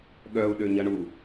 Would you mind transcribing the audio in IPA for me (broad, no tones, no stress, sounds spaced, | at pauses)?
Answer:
ɠ œ u̯ ɗ ø ɲ ɐ ɳ u